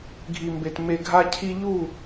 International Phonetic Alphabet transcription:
ɡʱi˨mbe˨t me˨ɡʱa˧cʰi˧ ʎu˦˨

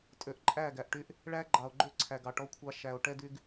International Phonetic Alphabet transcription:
tʼø˨ʔǃʼæ˦˨ɡæ˨ʔʈy˦ʔ | ɭæ˦ɡ͡ǃɑ˨o̯ɡ͡ǃø˦ǀʰæ˨ɡ ɑ˨ʈɔ˦kʷʰɑ˦ ʃæ˨o̯ ʈɛ˦dy˦ɡ

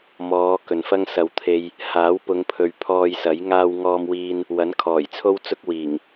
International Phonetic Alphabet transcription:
mɔː˨˧ kɵ˨nfɐ˥ŋ sɐ˨w t̪ʰe˧j | haː˨˥wpʊ˨˧ŋpʰɵ˨ɥ pʰɔː˧jsɐ˨˥j ŋaː˧wŋɔː˧mwiː˧n | wɐ˨˥nkʰɔː˨˩jt͡sʰo˥wt͡sʊ˥k̚ wiː˨˩ŋ

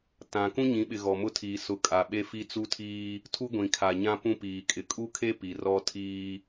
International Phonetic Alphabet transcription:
tã˨ kũ˦ɲĩ˨˦ɓɪ˨ ɣɔ˨mʊ˦tʰiː˨ sʊ˨˦ kʼa˨ɓe˦ fi˦t͡su˦tʰiː˦ | tʰu˦ɡʷĩ˨kʰa˨ɲã˦ pũ˦piː˨kʼɪ˨ kʼu˦kʰe˦ pi˨ rɔ˦tʰiː˦

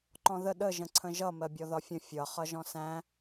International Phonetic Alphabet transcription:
ǃɔ̃ðə ɗə ʒə̃ǀʰə̃ʒʌ mɜbʲɔðɒfʲə̃ fʲʌ χʌʒɔ̃sæ̃

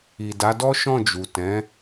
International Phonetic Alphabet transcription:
i˨da˨˦dɔ˦ ʃɔ̃˦˨d͡ʒu˨ tɛ̃˨˦

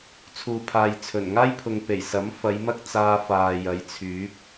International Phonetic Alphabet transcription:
t͡sʰuː˨pʰaː˨jt͡sʰɵ˨˩n ŋaː˥jpʰʊ˨ŋ pe˨˩jsɐ˨˥mfɐ˨˧jmɐ˥k̚ t͡saː˧faː˨jɐ˨˧j t͡sʰyː˨˥p̚

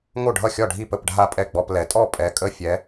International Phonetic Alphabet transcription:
ŋo˥˩ɖʱʌ˥˩xʲɒ˥˩ɖʱi˥˩ pə˥˩p ɖʱa˥˩pʼɛ˥˩ɡ͡bɔ˧˥˧plɛ˨˦ tʼɔ˥˩pʼɛ˨˦kʼə˧˥˧fʲɛ˨˦

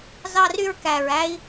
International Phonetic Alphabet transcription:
zɑ˥ry˥ɹkæ˧ɹæ˥i̯

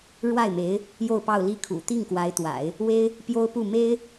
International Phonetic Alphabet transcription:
ɻwa˥˩ɪ̯me˧˥ɪ̯ | jo˥˧ʊ̯pɑ˥˧ʊ̯ li˥˩kʰṵ˨˩ t̪i˥˩ŋkwa˧˥ɪ̯t̪wa̰˨˩˦ɪ̯ | we˥ɪ̯ | pjo˥ʊ̯pu˥˩me˥ɪ̯

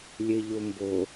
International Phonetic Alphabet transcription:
lʲeʎombo

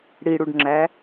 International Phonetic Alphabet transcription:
ɽiɽuɖŋ͡ǁæ

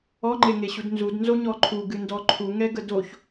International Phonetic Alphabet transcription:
ɔŋ͡ǃeŋeɕud nzudnzoɲɔ ǃʰuɡɨndɔ ǃʰuŋɛɡə doç

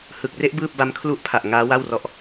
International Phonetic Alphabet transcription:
hɯ˨˩k̚re˦˥ʔ bɯː˥˩p̚ba˦˥m kʰlu˦˥ʔpʰa˨˩ʔ ŋaː˦˥wa˥˩wrɔ˦˥ʔ

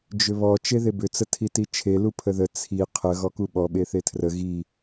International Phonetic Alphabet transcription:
d͡ʒʏβɔ t͡ʃeðebʏ t͡sətʰitit͡ʃʰe lupʰəðə t͡sʰi qʰə ɣɔkuɓɔ ɓeθetʰrə ɣi

